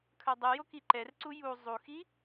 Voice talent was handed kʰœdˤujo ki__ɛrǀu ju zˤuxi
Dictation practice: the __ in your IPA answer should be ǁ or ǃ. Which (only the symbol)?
ǃ